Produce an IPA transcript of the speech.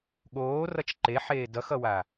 ɠ oː r ʌ t͡ʃ ǃ e ħ eː d ʌ x ʌ w a

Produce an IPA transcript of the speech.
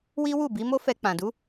w i˦ w u˦˨ b i˨˦ m o˦ f ɛ˧ k͡p ã˨ d u˨˦

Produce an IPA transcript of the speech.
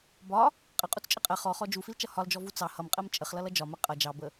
b ɒ | qʼ ə qʼ u t͡s t͡ʃʼ ə qʼ ɜ χ ɔ χ ɔ d͡ʒ u f i l t͡ʃ ʌ h ɒ l d͡ʒ ɔ v u t͡s ɑ h ʌ m qʼ ɜ m t͡ʃʼ ə χ l ʌ l ʌ d͡ʒ ɒ m ɜ qʼ ʌ d͡ʒ ɑ b ə

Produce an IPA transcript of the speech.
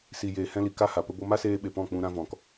s i˨ j eː˨ h ɛ̃˧ l i˨ k a˦ h a˨ p ə˦ b o˧ m a˦ s eː˧ ɓ e˨ p ɔ̃˦˨ k͡p ũ˧ ɾ ã˦ v ɔ̃˨ k

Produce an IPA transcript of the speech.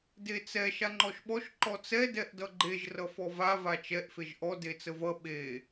d e t͡s ɛ ʃ a ŋ͡ǃ ɔ ʃ ɓ ɔ ʃ ǃ ɔ t͡s ɛ d ɛ ʔ d ʌ ɡ͡ǃ e ʒ r ʌ f ɔ v a v a t͡ʃ ɛ ʔ f e ʒ ʔ ɔ d e t͡s ə v ʌ ɓ e

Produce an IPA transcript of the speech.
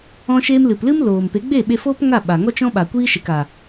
ɔ̃˧ ʃ eː˧ m l ɨ˨ p l ɨ˦ m l oː˨ m p e˨˦ ɡ͡b e˦˨ ɓ e˧ f oː˦ p ŋ a˦˨ ɓ a˨ ŋ ɔ˦ t͡ʃ ɔ̃˦ ɓ a˨ kʷ iː˦ ʃ e˨ k a˨

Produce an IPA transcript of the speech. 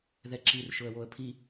ð ɛ ǁ i r ʃ ʊ ə̯ w o ə̯ pʰ i

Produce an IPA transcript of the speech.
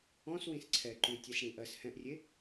ɔ̃ s w ĩ s ǀʰ ɛ ǃ ʉ tʲ ɛ s ɽ ĩ ʔ ɜ s h ɛ̃ ʔ rʲ e

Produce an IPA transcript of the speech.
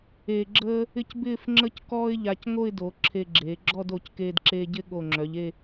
eː˧ ɡ͡ǁ əː˥ | ɪ˥˧ c b ɪː˥˧ f ŋ͡ǁ ə˥ c k ɔː˥ ɪ̯ ʎ a˧ c ŋ o˥˧ ɪ̯ d o˩˧ ǁʰ e˧ ɡ͡ǁ eː˩˧ ɡ͡ǁ ɔ˥˧ d o˧˩ c k eː˧ d ǁ eː˧ ɟ ɪ˥˧ ɠ o˧˩ ŋ͡ǁ œ˩˧ ʎ e˥˧

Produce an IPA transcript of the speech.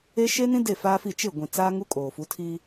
e˦ ʃ e˦ n ĩ˦ d e˦˨ f aː˦ f i˦˨ t͡ʃ ɪ˦˨ ɡʷ ĩ˨ t͡s aː˦ ŋ u˦ kʼ oː˨ f u˨˦ tʰ iː˦

